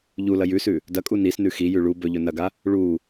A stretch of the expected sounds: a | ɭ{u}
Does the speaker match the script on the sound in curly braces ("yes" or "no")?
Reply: yes